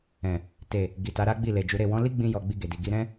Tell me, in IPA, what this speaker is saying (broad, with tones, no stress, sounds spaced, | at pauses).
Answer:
ɛ̃˨ | t e˨ | ɡ i˨ t a˨˦ ɾ a˦ ɡ͡b i˦˨ l e˨ d͡ʒ u˨˦ ɾ e˦˨ w ɔ̃˨˦ l i˦ ɡ͡b ĩ˧ j ɔ˨ ɡ͡b i˧ ɡ e˨ d i˨ ɡ i˧ ɾ ɛ̃˦